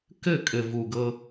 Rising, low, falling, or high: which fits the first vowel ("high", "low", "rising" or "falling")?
falling